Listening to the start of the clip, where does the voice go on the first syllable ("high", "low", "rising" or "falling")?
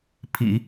low